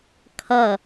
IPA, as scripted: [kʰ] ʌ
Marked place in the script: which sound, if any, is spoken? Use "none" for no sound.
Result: kʰ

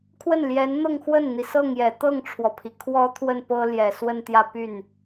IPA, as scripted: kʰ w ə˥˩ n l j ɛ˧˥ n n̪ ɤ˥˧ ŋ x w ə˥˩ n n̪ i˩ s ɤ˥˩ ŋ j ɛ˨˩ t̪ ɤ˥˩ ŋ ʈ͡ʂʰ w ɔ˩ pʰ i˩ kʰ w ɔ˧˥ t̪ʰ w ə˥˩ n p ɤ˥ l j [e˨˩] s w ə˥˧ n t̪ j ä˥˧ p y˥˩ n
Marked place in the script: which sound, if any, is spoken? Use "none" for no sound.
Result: ɛ˨˩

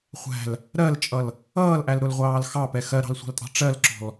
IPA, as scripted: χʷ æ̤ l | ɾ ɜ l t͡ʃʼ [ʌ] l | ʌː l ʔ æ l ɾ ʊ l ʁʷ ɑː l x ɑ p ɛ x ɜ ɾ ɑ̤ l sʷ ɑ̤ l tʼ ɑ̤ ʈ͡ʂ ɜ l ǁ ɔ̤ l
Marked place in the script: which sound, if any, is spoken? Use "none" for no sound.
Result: ʌ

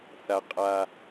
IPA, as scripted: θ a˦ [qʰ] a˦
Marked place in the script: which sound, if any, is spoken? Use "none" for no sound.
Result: qʼ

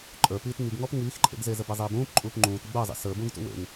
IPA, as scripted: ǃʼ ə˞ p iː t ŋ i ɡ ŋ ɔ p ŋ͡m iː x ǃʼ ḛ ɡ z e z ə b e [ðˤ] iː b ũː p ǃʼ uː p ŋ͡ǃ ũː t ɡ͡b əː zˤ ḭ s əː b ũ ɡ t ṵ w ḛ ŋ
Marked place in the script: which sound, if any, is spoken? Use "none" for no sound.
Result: zˤ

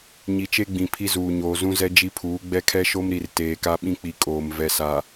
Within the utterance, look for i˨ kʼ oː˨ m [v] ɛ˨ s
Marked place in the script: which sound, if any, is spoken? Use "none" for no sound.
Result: v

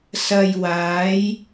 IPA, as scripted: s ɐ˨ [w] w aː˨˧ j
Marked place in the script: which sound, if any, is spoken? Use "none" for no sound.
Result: j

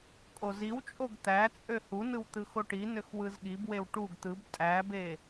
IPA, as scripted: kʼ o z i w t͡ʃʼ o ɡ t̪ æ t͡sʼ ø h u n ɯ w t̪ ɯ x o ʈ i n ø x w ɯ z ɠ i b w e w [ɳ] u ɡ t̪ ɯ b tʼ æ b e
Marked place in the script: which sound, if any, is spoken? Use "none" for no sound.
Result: ʈ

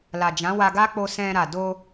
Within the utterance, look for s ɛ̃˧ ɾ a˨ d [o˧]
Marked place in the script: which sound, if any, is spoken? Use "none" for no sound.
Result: o˧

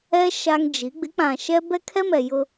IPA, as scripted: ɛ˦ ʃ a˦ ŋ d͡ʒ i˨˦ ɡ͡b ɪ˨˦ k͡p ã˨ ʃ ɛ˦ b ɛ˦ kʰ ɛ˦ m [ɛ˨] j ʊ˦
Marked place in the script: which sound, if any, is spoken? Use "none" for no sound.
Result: ɛ˨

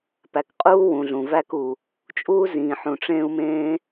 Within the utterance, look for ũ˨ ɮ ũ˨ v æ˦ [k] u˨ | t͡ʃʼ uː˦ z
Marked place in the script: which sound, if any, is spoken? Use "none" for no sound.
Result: k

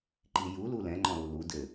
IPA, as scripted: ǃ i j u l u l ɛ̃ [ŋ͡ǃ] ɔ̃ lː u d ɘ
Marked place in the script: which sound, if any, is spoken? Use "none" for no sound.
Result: ŋ͡ǃ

